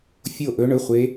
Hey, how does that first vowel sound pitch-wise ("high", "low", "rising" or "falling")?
falling